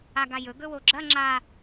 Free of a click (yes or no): no